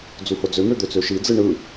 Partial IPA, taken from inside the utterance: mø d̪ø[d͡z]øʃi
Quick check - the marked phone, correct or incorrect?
incorrect: t͡s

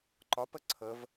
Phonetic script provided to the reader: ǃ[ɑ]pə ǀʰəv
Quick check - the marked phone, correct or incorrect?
incorrect: ɒ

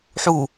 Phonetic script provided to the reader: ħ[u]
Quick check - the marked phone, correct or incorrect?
correct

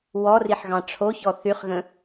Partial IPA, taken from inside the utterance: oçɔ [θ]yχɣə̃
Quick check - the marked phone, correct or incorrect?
correct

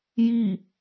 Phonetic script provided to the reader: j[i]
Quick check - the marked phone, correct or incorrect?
correct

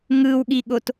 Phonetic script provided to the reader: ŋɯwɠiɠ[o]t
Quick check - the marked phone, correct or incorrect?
correct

